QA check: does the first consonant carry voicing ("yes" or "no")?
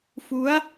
no